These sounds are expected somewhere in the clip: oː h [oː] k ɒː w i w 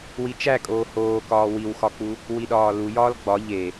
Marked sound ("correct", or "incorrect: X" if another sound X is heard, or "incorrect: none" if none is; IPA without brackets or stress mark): correct